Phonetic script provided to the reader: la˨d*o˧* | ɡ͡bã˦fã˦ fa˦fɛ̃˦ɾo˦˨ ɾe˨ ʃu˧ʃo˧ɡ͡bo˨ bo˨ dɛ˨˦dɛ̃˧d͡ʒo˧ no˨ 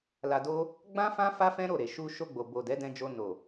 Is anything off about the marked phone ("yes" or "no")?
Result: no